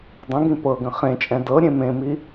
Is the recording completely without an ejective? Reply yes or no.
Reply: no